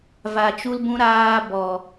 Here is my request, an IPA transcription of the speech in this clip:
v a˧ t͡ʃ u˦ l b ũ˦ ɾ aː˧ b ɔ˨

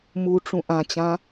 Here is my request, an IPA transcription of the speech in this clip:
m u ʈ͡ʂ ũ ʔ ã t͡ɕ ã

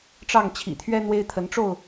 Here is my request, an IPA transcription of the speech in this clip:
ʈ͡ʂ ɑ˥˨ ŋ t͡ɕʰ ḭ˨˩ t̪ʰ ɥ ɛ˦ n̪ w e˦ ɪ̯ t̪ʰ ə˨˦ n ʈ͡ʂ o˥˨ ʊ̯

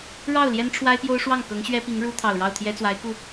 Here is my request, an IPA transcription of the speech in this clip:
ɻ ɑ˥˩ ʊ̯ l j ɛ˥ n ʈ͡ʂʰ w a˥ ɪ̯ p j o˥ ʊ̯ ʂ w ɑ˥˩ ŋ k ɤ˧˥ ŋ ɕ ɥ ɛ˥ p i˧˥ ŋ ɻ u˥ t̪ʰ ɑ˨˩ ʊ̯ ɻ ɑ˥˩ ʊ̯ t̪ʰ j ɛ˥ t͡s w a˧˥ ɪ̯ k u˥˩

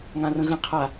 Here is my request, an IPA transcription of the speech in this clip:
ŋ ã r ə̃ ɣ ə̃ qʰ a

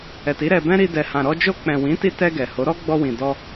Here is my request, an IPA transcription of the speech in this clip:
ɛ˨ t i˨˦ ɾ ɛ˧ b ɛ̃˦ ɾ i˧ d ɛ˨ h ã˨ ɾ ɔ˧ d͡ʒ o˧ k͡p ɛ̃˨ w ĩ˨˦ t i˧ t ɛ˧ ɡ ɛ˨ h o˨˦ ɾ ɔ˦ ɡ͡b ɔ˧ w ĩ˨ d ɔ˧

